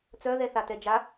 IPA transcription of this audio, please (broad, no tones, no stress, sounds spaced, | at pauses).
t͡s œ ð ɛ θ a t ɛ d͡ʒ a